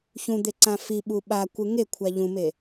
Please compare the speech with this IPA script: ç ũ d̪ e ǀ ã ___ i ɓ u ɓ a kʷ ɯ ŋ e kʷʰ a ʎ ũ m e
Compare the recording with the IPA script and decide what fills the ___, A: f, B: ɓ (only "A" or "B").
A